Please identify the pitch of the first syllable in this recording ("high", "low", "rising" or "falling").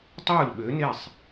falling